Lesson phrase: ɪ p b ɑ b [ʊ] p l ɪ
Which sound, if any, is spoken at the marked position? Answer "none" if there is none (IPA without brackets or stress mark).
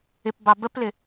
ə